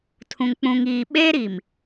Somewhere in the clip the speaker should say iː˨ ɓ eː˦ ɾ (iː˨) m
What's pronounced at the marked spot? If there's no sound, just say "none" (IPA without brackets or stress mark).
i˨